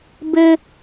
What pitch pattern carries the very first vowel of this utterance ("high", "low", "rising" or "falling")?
high